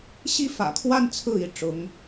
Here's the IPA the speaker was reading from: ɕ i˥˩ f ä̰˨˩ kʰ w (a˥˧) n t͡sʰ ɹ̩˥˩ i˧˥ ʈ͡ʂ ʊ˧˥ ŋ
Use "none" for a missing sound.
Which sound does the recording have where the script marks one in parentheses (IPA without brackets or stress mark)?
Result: a˥˧